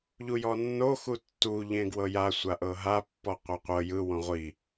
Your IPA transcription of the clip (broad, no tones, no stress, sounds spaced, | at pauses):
ʎ u j ɔ nː o x u tː u ʎ ẽ ɡ w ɤ j a sʷ a ʔ ɤ ɦ a pː ɔ qʷ a qʷ ɤ j ɯ w õ ʁʷ i